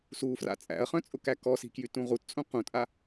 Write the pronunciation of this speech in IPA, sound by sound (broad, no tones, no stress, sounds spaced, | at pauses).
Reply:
s u f r a̰ t͡sʼ æ̰ ɐ̯ χ œ̃ t͡sʼ ʊ k æ k ɔ s i̤ k j y t ũ ʁ u t t͡sʼ ũ q ũ tʼ a